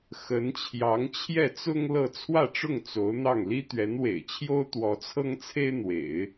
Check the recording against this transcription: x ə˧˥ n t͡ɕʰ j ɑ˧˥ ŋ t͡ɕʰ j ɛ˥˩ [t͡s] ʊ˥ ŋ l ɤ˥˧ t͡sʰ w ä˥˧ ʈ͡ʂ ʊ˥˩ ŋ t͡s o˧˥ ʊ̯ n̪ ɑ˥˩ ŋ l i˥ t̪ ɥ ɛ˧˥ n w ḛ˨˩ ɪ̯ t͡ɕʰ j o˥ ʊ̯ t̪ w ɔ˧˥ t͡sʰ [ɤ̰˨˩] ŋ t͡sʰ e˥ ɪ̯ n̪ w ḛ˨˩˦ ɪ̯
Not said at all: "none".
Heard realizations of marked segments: t͡s, ɤ˥

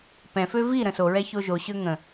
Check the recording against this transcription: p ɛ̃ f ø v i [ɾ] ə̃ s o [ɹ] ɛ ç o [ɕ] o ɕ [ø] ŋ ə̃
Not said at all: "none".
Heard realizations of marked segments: ɾ, ɹ, ʒ, ø

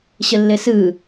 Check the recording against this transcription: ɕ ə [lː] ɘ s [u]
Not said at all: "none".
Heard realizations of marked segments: lː, ɯ

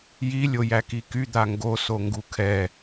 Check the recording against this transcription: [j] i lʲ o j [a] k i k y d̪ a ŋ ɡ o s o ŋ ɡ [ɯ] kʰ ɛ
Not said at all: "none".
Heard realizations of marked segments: j, æ, u

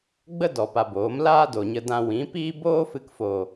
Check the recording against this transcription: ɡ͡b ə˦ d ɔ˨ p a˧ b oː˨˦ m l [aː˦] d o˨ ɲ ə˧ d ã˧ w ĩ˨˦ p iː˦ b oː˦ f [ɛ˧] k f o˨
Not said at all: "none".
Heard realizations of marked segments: aː˦, ɨ˧

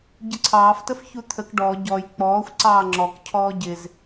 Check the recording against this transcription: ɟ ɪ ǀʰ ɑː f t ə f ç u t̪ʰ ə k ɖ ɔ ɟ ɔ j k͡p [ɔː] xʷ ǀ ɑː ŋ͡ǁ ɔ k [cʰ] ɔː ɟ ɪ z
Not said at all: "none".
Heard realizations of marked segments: ɔː, cʰ

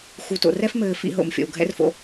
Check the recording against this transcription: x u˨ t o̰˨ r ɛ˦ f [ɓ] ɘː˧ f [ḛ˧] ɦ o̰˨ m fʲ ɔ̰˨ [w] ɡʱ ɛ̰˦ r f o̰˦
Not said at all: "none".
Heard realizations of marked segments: m, ḭ˧, w

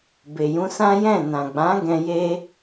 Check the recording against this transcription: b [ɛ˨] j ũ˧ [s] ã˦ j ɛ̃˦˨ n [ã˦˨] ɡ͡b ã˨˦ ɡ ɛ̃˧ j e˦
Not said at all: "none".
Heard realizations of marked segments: e˨, s, ã˨

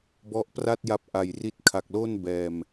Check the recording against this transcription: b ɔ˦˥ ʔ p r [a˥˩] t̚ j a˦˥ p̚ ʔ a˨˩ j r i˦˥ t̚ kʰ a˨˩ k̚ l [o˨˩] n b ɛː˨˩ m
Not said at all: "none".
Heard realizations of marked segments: a˥˩, o˥˩

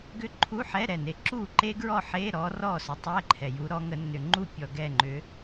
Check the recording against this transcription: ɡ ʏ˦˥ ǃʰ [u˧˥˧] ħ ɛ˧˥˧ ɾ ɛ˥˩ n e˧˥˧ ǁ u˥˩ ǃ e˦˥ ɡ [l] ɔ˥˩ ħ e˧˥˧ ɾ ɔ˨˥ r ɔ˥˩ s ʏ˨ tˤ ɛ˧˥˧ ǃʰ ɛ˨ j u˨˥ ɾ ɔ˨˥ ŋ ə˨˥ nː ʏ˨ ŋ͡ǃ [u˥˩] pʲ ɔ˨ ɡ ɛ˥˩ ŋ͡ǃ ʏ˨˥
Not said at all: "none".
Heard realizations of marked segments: u˧˥˧, ɹ, u˥˩

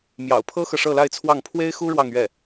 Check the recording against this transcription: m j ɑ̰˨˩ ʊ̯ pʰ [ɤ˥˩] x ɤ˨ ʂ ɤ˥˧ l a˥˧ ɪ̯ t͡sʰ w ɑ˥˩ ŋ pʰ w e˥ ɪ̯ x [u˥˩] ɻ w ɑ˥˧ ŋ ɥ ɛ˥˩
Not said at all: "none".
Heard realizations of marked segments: ɤ˥, u˥

